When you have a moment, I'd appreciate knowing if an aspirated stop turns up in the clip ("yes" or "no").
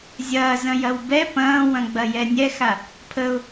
yes